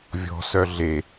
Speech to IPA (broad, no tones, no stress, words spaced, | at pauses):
vʲɔ̤ sœɮe